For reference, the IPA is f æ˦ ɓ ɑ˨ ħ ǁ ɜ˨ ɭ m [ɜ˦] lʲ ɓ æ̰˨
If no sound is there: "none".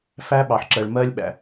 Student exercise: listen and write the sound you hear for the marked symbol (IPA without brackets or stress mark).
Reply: ɜ˦